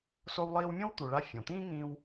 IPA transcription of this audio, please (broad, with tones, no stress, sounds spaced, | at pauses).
s o˧ w lˠ iː˧ w mʲ õ˥ w t̪ u˩ ɭ a˧ fʲ õ˩ t̪ ĩː˥ ŋ ĩː˧ w